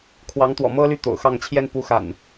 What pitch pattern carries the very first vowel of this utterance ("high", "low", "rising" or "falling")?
rising